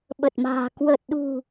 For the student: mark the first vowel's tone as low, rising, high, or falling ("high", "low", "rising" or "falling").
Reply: low